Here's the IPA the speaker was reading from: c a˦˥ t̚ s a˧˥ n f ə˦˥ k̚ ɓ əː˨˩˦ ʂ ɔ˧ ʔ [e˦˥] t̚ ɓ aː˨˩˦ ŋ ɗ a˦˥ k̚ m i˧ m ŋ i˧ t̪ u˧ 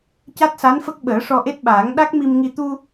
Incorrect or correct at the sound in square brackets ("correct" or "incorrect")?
correct